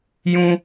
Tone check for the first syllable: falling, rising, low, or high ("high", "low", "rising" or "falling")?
high